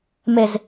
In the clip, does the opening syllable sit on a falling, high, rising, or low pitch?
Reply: low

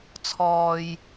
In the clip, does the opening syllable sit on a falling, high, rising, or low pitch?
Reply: low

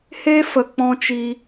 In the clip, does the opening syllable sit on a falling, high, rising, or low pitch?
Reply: high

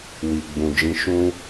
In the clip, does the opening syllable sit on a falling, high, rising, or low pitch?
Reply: low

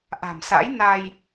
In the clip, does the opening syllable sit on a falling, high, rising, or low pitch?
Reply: low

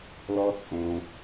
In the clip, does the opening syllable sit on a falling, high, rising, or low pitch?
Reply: high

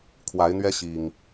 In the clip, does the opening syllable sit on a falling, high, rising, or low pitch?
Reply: rising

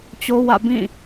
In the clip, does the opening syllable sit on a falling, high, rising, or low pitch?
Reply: high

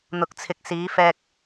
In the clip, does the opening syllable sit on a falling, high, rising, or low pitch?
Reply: low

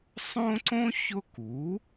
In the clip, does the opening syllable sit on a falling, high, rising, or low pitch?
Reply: high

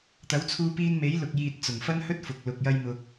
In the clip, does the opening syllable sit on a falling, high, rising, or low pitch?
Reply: rising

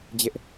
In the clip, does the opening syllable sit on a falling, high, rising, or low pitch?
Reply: high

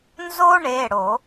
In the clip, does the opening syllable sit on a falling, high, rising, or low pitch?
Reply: high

